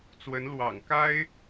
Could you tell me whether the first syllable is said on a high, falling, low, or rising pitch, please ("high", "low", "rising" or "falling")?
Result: rising